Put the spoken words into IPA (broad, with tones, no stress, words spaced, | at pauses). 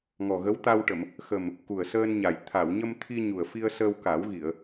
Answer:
ŋɔ˨˩ɣə˧˥wt̪a˧wʈə˨˩˨m | xə˨˩m | ku˨˩ə̯səː˧nɲa˨˩j t̪ʰa˨˩˨wɲə˧mt̪ʰi˧ ɲu˨˩ə̯fi˧ə̯səː˧w ka˨˩˦wɣi˨˩˨ə̯